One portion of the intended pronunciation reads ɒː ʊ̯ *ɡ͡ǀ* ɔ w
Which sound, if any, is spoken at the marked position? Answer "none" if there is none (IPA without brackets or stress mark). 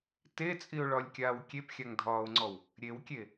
ŋ͡ǀ